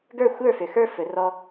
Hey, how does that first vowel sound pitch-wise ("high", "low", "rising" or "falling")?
falling